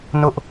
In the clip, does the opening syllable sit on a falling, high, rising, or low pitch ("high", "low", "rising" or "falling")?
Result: high